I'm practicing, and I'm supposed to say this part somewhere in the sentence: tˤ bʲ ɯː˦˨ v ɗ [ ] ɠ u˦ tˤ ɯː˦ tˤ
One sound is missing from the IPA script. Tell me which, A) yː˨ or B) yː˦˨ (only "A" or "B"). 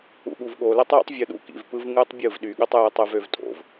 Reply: A